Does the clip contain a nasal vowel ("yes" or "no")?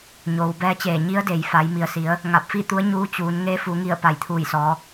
no